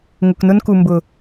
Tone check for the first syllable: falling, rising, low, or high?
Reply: low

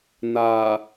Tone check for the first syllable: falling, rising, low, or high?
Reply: low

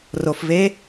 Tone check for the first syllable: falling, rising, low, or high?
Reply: low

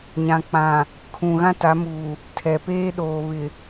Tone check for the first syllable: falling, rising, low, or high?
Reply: low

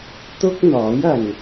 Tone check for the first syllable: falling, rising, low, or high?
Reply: high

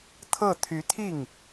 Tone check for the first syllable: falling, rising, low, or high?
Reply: falling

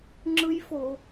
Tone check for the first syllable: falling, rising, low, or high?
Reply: high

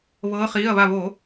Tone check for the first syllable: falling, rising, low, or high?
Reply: rising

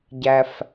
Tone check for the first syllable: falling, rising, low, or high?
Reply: low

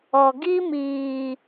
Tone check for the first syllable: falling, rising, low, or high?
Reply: low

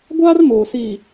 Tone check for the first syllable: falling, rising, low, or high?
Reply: high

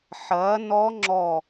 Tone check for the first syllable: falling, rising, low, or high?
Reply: rising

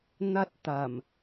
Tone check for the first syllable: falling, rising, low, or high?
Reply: high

